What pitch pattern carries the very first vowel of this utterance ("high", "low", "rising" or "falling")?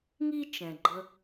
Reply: high